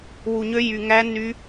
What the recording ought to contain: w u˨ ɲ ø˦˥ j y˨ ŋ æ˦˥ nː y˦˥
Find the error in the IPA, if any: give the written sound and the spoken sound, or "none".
none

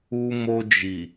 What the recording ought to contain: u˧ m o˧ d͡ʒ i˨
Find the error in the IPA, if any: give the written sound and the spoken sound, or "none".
none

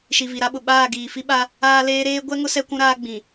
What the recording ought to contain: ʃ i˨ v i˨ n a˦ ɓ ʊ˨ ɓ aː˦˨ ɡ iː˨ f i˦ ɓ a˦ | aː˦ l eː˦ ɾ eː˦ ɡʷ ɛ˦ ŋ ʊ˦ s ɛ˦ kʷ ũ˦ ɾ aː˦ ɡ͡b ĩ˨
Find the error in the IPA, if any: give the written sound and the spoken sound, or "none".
n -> ɾ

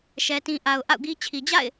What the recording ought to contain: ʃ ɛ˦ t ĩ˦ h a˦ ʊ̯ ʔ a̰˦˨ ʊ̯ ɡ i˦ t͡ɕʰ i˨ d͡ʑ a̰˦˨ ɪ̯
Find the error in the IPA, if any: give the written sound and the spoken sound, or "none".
h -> ʔ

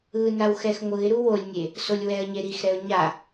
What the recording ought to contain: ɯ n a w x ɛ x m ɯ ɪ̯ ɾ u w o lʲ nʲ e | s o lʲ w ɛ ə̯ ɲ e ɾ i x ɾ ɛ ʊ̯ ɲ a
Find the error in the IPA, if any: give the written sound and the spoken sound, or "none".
m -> ŋʷ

